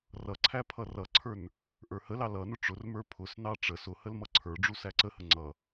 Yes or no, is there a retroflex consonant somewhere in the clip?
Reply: yes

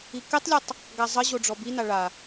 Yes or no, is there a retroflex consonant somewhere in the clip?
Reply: yes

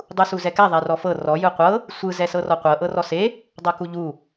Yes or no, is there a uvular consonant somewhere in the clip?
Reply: yes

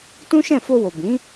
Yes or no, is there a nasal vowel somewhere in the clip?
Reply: yes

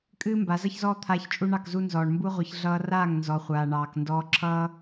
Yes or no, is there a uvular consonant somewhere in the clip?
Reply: yes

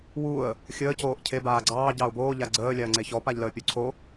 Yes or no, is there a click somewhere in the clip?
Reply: yes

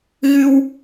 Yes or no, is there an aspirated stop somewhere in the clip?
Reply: no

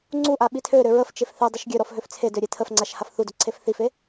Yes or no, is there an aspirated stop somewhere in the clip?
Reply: yes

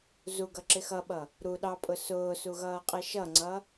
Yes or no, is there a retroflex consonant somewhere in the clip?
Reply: no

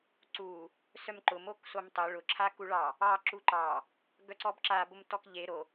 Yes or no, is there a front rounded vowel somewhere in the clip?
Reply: yes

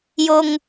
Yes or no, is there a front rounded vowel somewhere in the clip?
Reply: no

